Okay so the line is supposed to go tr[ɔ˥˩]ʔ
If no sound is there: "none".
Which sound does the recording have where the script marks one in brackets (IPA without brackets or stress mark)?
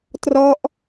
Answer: ɔ˦˥